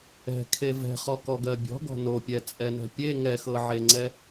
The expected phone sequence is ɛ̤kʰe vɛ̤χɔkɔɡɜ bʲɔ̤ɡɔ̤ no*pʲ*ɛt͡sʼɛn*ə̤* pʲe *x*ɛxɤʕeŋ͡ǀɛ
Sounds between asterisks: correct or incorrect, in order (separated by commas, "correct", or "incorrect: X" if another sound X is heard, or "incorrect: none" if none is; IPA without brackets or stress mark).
correct, incorrect: ɛ̤, incorrect: ŋ